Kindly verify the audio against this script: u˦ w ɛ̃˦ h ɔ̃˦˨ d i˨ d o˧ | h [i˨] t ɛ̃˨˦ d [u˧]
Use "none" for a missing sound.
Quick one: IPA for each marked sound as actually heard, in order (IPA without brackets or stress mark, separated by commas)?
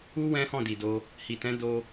i˨, o˧